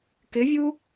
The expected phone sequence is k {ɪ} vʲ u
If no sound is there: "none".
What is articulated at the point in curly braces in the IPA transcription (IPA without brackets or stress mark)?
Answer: ɪ